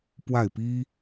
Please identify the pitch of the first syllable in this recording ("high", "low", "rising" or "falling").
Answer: falling